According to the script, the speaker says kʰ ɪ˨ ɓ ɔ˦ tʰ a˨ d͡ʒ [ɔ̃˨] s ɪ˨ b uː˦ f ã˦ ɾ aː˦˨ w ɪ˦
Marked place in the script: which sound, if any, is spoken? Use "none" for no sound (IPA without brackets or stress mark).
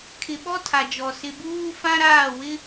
ɔ˨